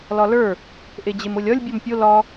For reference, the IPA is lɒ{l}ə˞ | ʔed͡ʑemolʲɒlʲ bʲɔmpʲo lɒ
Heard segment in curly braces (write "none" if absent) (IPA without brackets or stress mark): l